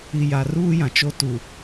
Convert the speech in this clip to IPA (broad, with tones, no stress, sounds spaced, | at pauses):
i˨ j a˨ r uː˦ j ã˨ t͡ʃ o˦ t u˨